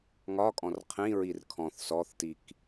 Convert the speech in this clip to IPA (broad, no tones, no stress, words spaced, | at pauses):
ŋɒkʼɔ̃r qʰĩɹir kʰɔ̃θ sɔθtik